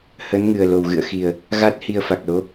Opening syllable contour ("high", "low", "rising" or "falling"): rising